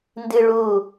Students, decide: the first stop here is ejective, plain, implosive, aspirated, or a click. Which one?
plain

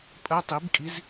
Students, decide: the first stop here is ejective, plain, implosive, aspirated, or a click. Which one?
ejective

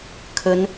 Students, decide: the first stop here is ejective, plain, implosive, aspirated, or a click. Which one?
aspirated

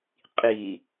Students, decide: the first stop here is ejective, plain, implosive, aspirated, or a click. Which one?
ejective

